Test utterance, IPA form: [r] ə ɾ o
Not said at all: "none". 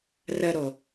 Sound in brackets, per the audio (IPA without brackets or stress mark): r